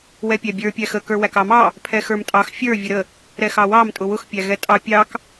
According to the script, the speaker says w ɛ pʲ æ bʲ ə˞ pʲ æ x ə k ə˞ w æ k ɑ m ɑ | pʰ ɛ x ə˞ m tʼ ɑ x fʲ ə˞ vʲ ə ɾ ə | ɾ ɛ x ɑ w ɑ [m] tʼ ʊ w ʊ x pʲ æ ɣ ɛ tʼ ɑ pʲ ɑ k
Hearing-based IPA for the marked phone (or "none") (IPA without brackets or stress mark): m